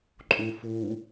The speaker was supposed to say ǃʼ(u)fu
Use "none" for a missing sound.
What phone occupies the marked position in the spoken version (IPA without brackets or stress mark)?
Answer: u